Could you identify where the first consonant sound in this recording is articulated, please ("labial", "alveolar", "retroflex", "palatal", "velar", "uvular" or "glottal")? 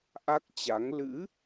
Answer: glottal